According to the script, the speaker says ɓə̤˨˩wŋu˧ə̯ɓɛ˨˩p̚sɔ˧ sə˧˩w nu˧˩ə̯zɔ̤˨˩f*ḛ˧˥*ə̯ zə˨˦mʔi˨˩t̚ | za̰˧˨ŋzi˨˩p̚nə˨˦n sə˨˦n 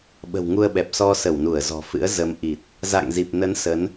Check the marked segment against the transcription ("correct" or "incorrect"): incorrect